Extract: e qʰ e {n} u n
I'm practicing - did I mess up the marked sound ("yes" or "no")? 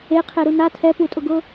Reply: yes